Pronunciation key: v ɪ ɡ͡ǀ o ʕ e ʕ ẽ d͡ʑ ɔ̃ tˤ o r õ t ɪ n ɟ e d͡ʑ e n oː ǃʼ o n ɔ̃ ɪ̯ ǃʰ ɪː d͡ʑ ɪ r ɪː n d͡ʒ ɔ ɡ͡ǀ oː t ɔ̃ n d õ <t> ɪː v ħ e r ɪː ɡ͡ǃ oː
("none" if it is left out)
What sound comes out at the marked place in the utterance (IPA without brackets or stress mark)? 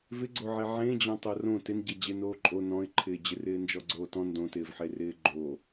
t